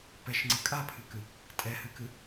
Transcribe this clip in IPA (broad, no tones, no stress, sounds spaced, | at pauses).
p ɛ ʃ ŋ͡ǀ ɨ kʼ a pʰ ɨ k ɨ | tʼ ɛ h ɨ k ɨ